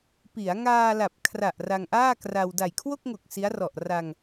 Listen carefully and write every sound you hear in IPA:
p i˩˦ a̯ ŋ aː˧ l a˨˩ p̚ kʰ r a˨˩ ʔ r a˧ ŋ ʔ aː˥˩ k r a˧ w d a˨˩ j kʰ w o˥˩ k̚ ŋ o˨˩ k̚ s i˦˥ a̯ r ɔ˨˩ ʔ r a˧ ŋ

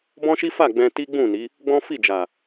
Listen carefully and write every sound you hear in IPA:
b ɔ̃˦ ʃ i˦ f a˦˨ ɡ͡b ɛ̃˧ t i˦ ɡ͡b ũ˦˨ n i˨˦ | ɡ͡b ɔ̃˦ f i˦˨ d͡ʒ a˨

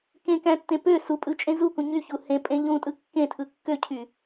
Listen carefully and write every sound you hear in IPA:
k ẽ k æ̃ tː ẽ p ø s u pʼ ɯ t͡ʃʼ ẽ z u k ũ ɲ y ç u h ẽ pʼ ẽ ʎ ũ tʼ ɯ kː ẽ tʰ ɯ kː ø cʰ y

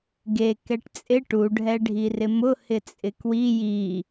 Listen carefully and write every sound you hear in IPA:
ɡ e k ɛ ʈ t͡sʼ ɪ ʈ u ɖʱ ɛ ɖʱ i r ɪ m ʊ h ɪ t͡sʼ ɪ k w i j i

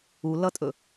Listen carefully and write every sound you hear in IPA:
u l ʌ tʼ ɵ

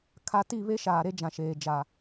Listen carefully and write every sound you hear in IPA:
kʰ a˦ t i˦˨ β e˦ ʃ aː˨ ɾ e˦ d͡ʒ ã˨ ʃ eː˨ d͡ʒ a˨

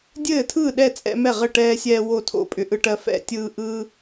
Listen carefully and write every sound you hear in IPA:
dʲ ɘː˥˩ tʰ ɯː˥˩ ɗ ɛ˥˩ t͡sʼ ɛ̰˦ m ɛ˥˩ ʁ ɘ˥˩ ʈ ɛː˦ sʲ ɛː˦ w o˥˩ tʰ o̰˥˩ pʼ ʏ˦ ʔ ɯ˦ ʈ ɜ˦ f ɛ̰˥˩ tʲ ɯː˦ ʔ ɯː˦

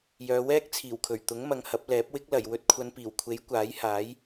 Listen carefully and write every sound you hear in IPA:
j œː˨˧ w ɛː˥ k̚ t͡sʰ iː˨˩ w kʰ ɵ˨˩ ɥ t̪ ʊ˨˥ ŋ m ɐ˨˧ ŋ h ɐ˨˥ p̚ l ɛː˨˥ p̚ w ɪ˥ k̚ l ɐ˨˩ j w ɵ˧ t̚ kʷʰ ɐ˨˧ n p iː˨˩ w kʷʰ e˨˥ j kʷ aː˨˥ j h aː˨˥ j

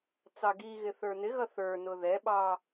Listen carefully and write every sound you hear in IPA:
t͡s ɑ ɡ i ɣ ɪ θ ə˞ n ɪ ɣ ʌ θ ə˞ n ʊ ð ɛ ɓ ɑ

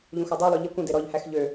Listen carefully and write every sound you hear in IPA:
ʎ ũ x ɔ dˤ œ lˠ ø ʎ i kʷ ĩ d e ɾ ɔ ʎ h æ x ʎ ø

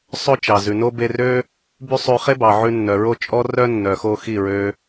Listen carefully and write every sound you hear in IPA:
sˤ ɵ˦ t͡ʃ ɑ˨ z ʉ˨ n o˦ b e˧ r ø˦ | b y˦ sˤ ʉ˧ χ e˦ b ɑ˨ ʕ ʉ˧ nː œ˨ ɹ o˦ t͡ʃʼ ɔ˦ r œ˦ nː œ˨ x o˧ x i˦˨ ɹ ø˧

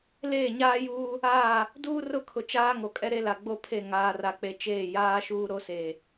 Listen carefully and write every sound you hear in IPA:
l eː˦˨ ɲ aː˦ j uː˦ | aː˦˨ | d uː˦ r ʊ˦˨ kʰ ʊ˨ t͡ʃ aː˦ ŋ o˨ kʼ ɛ˦ ɾ e˦ l a˨ ɡ͡b o˦ pʰ e˦˨ ŋ aː˨ r a˨ k͡p e˨ t͡ʃ eː˦˨ j aː˦ ʃ uː˦ ɾ o˦ s eː˨

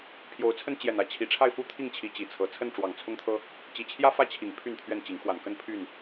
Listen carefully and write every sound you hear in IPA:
pʰ j o˨˦ ʊ̯ t͡sʰ ə˦ n t͡ɕ j ɛ˨˩ n ä˥˨ t͡ɕʰ i˨˩ ʈ͡ʂʰ a˥˨ ɪ̯ f u˥˨ t̪ʰ i˥˨ ŋ t͡ɕʰ i˨˦ t͡ɕ i˨˩ t͡sʰ ɤ˨˦ t͡sʰ ə˥˨ n ʈ͡ʂ w ɑ˨˩ ŋ t͡sʰ ʊ˦ ŋ t̪ʰ ɤ˦ | t͡ɕ i˨˩ t͡ɕʰ j ä˦ f ä˦ t͡ɕʰ i˨˩ ŋ pʰ y˥˨ n t̪ʰ ɥ ɛ˥˨ n t͡ɕ i˨˦ ŋ x w a˨˩ n k ə˥˨ n pʰ y˥˨ n

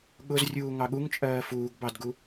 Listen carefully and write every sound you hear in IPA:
ɠ ʊ z rʲ uː ŋ ɑ ɠ u ŋ t͡ʃʼ ɜː f uː ɡ b ɑ d ɡ u

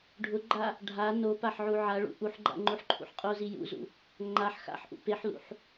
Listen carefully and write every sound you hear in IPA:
ɖʱ ʊ ɡ͡ǃ a | ɖʱ a n o p a ħ ʕ u ʕ a ɭ ṵ ʔ u ħ ɡ͡ǃ a̰ ŋ͡ǃ u ħ ǃʰ ṵ ħ qʼ o z i j ṵ z ṵ | ŋ͡ǃ a ħ x a̰ ħ ʔ ṵ p e ħ l ṵ ħ

